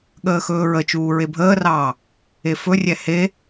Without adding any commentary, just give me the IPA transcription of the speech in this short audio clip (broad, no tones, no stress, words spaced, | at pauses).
ɠəːxɵːɹət͡ʃuː ɹebʱəːrɑː | efɵrʲɛ he